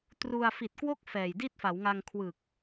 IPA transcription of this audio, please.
t r u˧ a̯ f i˨˩ t̚ k w o˥˩ k̚ f ɛː˨˩ j d i˥˩ t̚ f a˩˦ w ŋ a˧ ŋ kʰ w ɯ˨˩ k̚

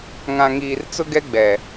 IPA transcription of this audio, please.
ŋ ã˨ ŋ iː˨ r t͡s ʊ˦ ɡ ɛ˦ ɡ͡b ɛ˨

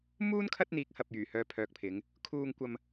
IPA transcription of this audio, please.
m uː˥ n kʰ ɐ˥ t̚ n̪ iː˨˥ k̚ h ɐ˨ p̚ j yː˨˩ h œː˧ pʰ œː˨ k̚ pʰ ɪ˨˧ ŋ | kʰ uː˧ ŋ kʷ ɐ˧ m

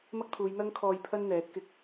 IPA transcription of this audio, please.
m ɐ˥ k̚ t̪ʰ uː˨˧ j n̪ ɐ˥ ŋ kʰ ɔː˧ j pʰ ɐ˥ n n̪ ɛː˨˥ t̚ k ɪ˧ k̚

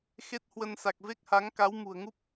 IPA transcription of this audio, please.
x e˦˥ t̚ h w ə˧ n s a˨˩ k̚ v e˦˥ k̚ h a˨˦ ŋ k a˨˦ w m ṳ˨˩ ə̯ ŋ u˦˥ p̚

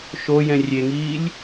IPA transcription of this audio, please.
ʃ o j ɛ̃ rʲ e ŋ iː lʲ

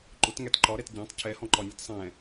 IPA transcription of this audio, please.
ǃ ʊ t ŋ æ t ǃ ɒ ɾ ɛ t ɟ æ̃ tˤ cʰ ɛ h ɔ̃ ǃ ɒ nʲ ɔ t sˤ ɛ̃

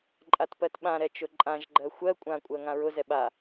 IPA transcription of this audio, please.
ǃʼ a t p ɜ t ɓ ã ɾ ɛ t͡ʃ ʊ ǃʼ ã ʒ ɡ͡ǃ ɜ xʷ ɜ kʷʼ ã kʷʼ ɜ ŋ ã ɹ ʊ z ɛ ɓ a

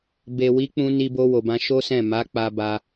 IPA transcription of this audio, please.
b e˨ w i˨˦ k͡p ũ˧ n i˧ b o˧ w o˨ b ã˧ ʃ o˦ s ɛ̃˦˨ m a˨˦ k͡p a˧ b a˧

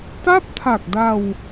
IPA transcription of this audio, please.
t a˥˩ p̚ tʰ a˨˩ k̚ d a˧ w

